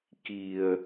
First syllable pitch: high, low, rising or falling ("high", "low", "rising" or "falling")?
low